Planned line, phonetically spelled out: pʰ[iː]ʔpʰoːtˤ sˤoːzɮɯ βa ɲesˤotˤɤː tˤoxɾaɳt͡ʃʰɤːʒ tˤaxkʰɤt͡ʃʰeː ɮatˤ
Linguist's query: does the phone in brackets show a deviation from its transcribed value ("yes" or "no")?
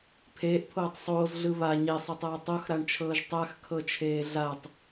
yes